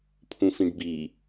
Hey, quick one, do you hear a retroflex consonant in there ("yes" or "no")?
yes